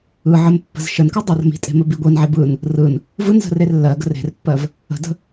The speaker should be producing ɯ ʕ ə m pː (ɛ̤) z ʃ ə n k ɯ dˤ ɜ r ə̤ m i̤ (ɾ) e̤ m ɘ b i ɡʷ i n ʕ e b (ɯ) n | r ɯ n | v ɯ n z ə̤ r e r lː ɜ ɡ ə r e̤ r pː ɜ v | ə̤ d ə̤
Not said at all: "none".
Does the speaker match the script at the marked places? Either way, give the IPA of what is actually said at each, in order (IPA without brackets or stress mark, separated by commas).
ə̤, tʼ, ɯ